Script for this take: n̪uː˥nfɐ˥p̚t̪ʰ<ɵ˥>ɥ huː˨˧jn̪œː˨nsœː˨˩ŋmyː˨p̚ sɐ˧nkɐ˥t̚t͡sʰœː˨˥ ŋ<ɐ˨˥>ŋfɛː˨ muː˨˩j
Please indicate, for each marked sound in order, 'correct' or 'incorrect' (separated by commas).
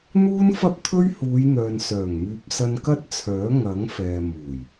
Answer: correct, correct